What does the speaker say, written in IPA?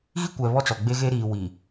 ɣ i˦ kʷ ɛ˨ β ɔ˦ t͡s ɔ˨ ɡ͡b e˦ ɣ e˦ ɾ iː˨ w i˨

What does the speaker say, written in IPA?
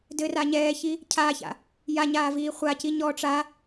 d ɘ r a ɲ ɛː ç i | cʰ aː ç a̰ | j a ɲ aː v iː χʷ a c i ɲ ɔː ʈ͡ʂ a

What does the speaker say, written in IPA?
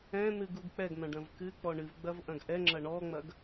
ɛ̃ n̪ ɨ ɡ u ɡ k͡p ɛ ɡ n̪ ɐ̃ ɖ ɐ̃ v k ɨ k͡p ɔ ɳ ɨ v ɡ͡b ɐ v ʔ ɐ̃ ɡ ʔ ɛ ŋ͡ǁ ɐ ɳ ɔ ŋ͡m ɐ ɡ

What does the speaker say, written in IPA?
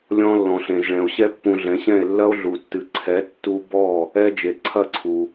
lʲ ɔ̃˧ lː ɔ̃˩ ɬ ẽ˩ z ɭ ɛ̃˩ o̯ ɕ ɛ˥ pː ũ˧ ɮ ɛ̃˩˥ ɕ ɛ̃˥˩ e̯ lː ɐ˥ o̯ ɮ u˩ tː ɨ˩ ǀʰ ɛ˩˥ tː u˧ b ɔ˥˩ | ɛ˥ d͡ʒ e˩ ǀʰ ɐ˥˩ ǀʰ u˩

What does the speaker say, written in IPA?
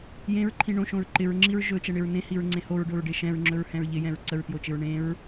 j ẽ ɹ ǃʰ ĩ ɳ õ ʃ õ ɹ ǃ ɪ ɹ ŋ͡ǁ i ɹ ʒ ɵ t͡ʃ ɛ ɳ ɪ ɹ n ẽ h i ɹ ŋ͡ǀ ẽ h o ɹ ɖ o ɹ ɖ e ʃ ɛ̃ ɹ ŋ͡ǁ ɵ ɹ h ɛ̃ ɹ ʎ ɪ j ɛ̃ ɹ ǀ ə ɹ t j o t͡ʃ ɪ ɹ ɳ ẽ ɹ

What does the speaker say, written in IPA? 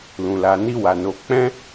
l ũ˨ l a˨ n i˧ w a˨ n o˨˦ k͡p ɛ̃˦

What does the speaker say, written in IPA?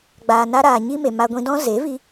ɡ͡b aː˨ n a˧ ɾ aː˨ ɲ i˦ m e˨ m a˧ ɡʷ ĩ˧ d ɔ̃˦ z e˨˦ v i˧

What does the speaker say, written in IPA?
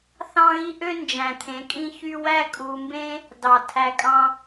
θ ɑ̃˦ ɣ i˦ ʔ ø˦ n d͡ʒ æ̃˨ t̪ʰ ẽ˨˦ kʼ ĩ˦ ç y˦ w æ˦ kʼ u˧ m b ẽ˦ | d ɑ˨ tʰ æ˧ kʼ ɑ̃˦

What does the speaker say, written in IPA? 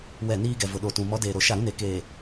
w ɛ˦˨ n iː˦ ɡ ɛ˨ v ʊ˨ ɗ o˨ t ũ˨ m ɔ˨˦ d eː˨ ɾ o˨ ʃ a˦˨ ɾ ũ˦ n e˨ k eː˨

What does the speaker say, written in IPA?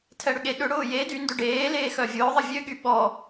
tʰ ɛ ɽ ʏ ɠ e ɗ ʏ ɽ ʊː j e d y n d ø ɖ eː l eː x œ vʲ ʊː ðˤ ə vʲ ø ɠ y ɓ ɔ

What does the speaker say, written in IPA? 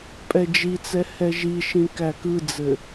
pʼ ɛ d͡ʒ i t͡s ɛ h ɛ ʒ i ʃ ĩ k æ k ɯ d͡z ɘ

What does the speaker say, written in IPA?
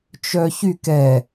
t͡ʃ œ ç y k ɛ

